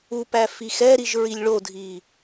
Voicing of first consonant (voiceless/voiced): voiceless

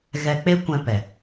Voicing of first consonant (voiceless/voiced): voiced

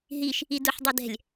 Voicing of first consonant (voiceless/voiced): voiced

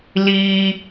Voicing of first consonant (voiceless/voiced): voiced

